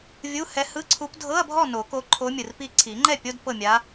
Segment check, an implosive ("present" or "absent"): absent